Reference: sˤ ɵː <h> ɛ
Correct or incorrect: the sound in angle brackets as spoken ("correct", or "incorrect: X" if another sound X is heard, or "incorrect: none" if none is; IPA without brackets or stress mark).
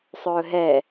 incorrect: ɦ